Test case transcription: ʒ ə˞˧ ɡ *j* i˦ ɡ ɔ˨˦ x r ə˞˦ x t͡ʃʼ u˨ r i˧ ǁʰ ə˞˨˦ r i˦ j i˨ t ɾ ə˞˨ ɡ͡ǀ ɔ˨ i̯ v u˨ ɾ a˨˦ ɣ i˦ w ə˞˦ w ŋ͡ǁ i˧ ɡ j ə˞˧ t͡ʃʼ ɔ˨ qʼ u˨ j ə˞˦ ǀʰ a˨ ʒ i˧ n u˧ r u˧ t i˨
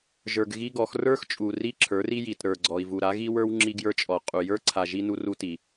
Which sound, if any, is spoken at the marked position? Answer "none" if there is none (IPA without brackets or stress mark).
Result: ɣ